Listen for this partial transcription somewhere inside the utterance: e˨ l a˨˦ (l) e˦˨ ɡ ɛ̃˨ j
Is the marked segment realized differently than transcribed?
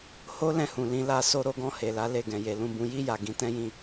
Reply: no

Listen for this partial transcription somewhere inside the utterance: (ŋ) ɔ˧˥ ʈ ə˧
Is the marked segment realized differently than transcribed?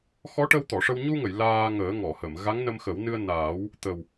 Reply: yes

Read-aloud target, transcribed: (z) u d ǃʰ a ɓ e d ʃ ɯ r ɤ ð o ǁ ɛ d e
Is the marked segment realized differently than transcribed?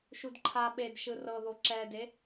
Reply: yes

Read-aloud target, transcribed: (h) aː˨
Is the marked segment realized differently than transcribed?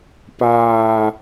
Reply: yes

